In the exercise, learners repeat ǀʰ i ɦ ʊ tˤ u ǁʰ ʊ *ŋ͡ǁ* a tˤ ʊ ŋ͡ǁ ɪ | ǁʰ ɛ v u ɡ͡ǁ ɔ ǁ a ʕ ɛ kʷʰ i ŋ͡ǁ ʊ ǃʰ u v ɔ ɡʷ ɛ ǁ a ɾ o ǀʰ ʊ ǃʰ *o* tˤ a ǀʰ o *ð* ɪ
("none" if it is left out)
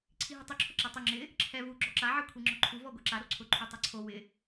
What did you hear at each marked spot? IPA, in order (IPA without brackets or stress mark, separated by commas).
ǁ, u, w